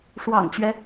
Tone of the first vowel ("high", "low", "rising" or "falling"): low